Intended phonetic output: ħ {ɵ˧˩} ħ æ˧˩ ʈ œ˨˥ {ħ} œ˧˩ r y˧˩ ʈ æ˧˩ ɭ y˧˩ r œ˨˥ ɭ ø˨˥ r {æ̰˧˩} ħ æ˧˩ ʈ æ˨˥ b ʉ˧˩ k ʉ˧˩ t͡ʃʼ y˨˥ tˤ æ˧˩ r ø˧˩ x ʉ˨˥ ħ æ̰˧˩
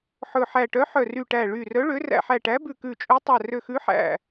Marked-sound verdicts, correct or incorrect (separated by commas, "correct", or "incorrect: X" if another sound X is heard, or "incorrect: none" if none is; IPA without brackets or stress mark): correct, correct, correct